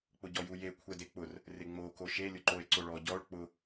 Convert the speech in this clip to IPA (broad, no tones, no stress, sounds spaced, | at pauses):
k͡p ʊ ɟ ɔ j u j e kʷʰ ɛ d e k͡p ʊ r | r ɪ ŋ͡m o k o ʃ e lʲ ʊ ǃ o e̯ ǀ o ɭ ɔ ɟ ɔ ɭ k͡p ʊ